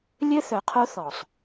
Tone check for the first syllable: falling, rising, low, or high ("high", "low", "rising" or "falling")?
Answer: high